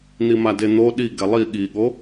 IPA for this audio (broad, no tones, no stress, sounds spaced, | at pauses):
n̪ i m a d e n̪ o ɗ i ɡ ɛ lˠ i ɠ i ɠ o